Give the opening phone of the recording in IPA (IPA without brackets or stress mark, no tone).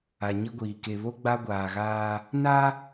a